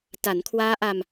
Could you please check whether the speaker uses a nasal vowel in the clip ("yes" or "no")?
no